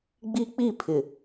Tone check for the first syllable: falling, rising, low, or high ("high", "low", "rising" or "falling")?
high